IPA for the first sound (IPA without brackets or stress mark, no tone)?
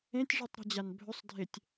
ẽ